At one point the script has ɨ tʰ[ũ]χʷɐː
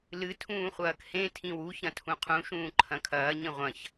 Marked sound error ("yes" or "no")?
yes